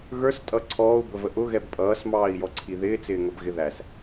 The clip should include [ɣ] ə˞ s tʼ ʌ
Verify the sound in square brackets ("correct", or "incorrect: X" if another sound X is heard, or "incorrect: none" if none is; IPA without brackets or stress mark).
correct